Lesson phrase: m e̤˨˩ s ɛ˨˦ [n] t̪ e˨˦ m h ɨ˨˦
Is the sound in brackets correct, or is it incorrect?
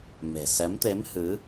incorrect